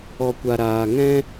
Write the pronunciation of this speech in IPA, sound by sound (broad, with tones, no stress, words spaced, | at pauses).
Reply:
ɔ˨kʷa˨ ɾaː˨ ŋɛ̃˦